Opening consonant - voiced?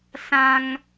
no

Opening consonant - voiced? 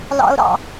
yes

